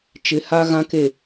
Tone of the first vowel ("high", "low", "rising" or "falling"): rising